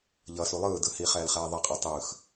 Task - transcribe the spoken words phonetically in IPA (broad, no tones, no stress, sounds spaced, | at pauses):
ʎ ʌ s u lˠ ɯː d ɯ h i χ ɛː l χ ɛː ðˤ ɛ qʼ ɯ tˤ ɯː x